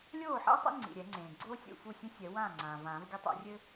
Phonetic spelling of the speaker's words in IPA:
lʲ oː˥˩ ħ ḛ˥ w tˤ ḭ˥ ŋ͡ǀ ḭ˩ ɾʲ ɛ˨˩˦ ŋ͡ǀ ẽː˩ ɡ͡ǀ oː˥ sʲ ṵ˥˩ f u˥˩ sʲ ɛ̃˥ sʲ ɛ˨˩˦ w ãː˥˩ ŋ͡ǀ ãː˩ v ãː˨˩˦ v ɡʲ ɐ˥ tˤ o̰˨˩˦ rʲ ɘ˥

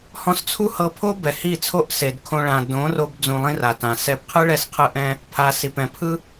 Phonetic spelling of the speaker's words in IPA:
h ɔ̃˧ s t͡sʰ u˦ h ɤ˧ pʰ o˦ b ɛ˨ h i˦˨ t͡sʰ o˦ ʔ s e˨ d kʰ õ˧ ɭ ã˨ d õ˨˦ r o˧ b d͡z ũ˧ lˠ ĩ˦ r a˨ t ã˨ s ɛ˧ b qʰ ɯ˦ ɭ ɛ˧ s qʰ ɯ˧ ʔ ɛ̃˧ | pʰ a˧ s i˨ p ɛ̃˨ pʰ ɯ˦

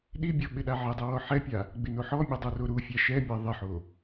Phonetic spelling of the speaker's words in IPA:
ɗ i bʲ ɔ ɓ ɪ ɗ a ʕ ɪ dˤ ɛ w ɔ ħ ɛ pʲ a | ɡ͡b ɪ n o ħ ɔ mʲ ɛ dˤ o r o ɾ u fʲ a ʃ ɛ mʲ a ðˤ ɪ ħ o

